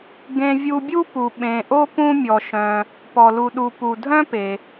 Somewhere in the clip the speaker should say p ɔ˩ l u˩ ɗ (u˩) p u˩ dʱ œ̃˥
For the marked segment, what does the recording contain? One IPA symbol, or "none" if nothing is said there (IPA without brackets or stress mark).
u˩